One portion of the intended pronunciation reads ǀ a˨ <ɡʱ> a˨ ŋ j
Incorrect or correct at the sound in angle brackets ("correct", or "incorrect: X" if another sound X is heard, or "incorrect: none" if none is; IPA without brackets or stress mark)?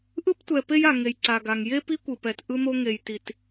incorrect: ɡ